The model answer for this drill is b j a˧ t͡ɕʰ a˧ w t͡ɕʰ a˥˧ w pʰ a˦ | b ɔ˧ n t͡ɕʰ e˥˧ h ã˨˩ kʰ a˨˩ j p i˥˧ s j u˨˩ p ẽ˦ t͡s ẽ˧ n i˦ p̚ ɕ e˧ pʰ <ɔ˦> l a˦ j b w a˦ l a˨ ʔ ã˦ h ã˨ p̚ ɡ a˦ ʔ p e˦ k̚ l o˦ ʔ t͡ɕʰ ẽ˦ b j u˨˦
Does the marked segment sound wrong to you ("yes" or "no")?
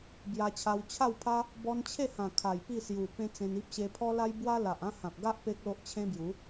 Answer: no